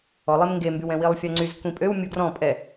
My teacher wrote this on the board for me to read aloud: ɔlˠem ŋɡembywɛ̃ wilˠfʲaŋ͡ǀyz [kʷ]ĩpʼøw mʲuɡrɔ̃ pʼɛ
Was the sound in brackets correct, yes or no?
yes